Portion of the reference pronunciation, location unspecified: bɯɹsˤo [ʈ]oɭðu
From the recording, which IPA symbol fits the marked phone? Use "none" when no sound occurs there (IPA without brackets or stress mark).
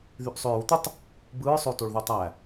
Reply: t